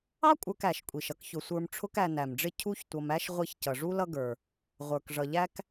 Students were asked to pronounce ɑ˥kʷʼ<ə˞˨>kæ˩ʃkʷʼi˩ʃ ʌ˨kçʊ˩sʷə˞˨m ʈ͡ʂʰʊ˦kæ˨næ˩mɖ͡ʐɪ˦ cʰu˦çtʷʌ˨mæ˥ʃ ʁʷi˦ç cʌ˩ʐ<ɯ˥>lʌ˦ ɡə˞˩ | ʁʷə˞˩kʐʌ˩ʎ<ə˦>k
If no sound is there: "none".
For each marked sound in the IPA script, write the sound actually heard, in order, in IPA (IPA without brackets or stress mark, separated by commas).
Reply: ə˞˨, u˥, æ˦